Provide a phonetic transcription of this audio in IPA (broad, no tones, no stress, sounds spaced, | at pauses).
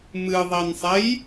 m ɨ ðˤ i n sˤ e j